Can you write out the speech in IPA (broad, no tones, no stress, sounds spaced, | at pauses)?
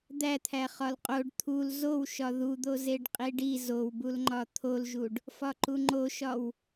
d̪ æ t̪ʰ æ χ ɒ l qʼ o ɖ t̪ʰ u l z o w ʃ ɒ ð u d̪ o z e ɖ qʼ i ɖ i z o w b u l ŋ͡ǃ ɒ t̪ʰ o l ʒ u ɖ | f ɒ ǃ u ŋ͡ǃ o ʃ ɒ w